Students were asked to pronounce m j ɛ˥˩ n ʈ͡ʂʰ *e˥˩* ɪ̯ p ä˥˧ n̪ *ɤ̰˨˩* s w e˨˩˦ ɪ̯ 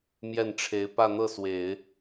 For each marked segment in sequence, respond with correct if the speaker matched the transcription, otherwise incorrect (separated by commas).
incorrect, incorrect